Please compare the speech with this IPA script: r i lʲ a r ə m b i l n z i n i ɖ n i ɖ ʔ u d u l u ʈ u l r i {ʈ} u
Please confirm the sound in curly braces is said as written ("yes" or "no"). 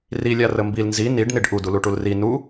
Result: no